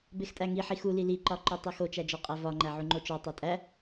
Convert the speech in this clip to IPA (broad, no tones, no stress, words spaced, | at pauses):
bextʼæŋi ħixuli liǃɒǃo tˤixot͡ʃæ d͡ʒɒqʼævɒŋ͡ǃæ ʕuŋ͡ǃot͡ʃɒ tˤetʼæ